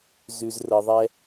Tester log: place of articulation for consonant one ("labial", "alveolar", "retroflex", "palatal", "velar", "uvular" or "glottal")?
alveolar